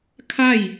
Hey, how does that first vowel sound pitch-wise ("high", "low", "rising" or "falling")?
falling